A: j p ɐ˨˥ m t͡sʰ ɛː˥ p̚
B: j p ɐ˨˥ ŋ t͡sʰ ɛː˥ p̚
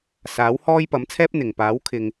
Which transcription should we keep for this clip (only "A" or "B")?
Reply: A